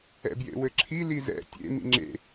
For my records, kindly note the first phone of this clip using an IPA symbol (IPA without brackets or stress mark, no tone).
ɛ̰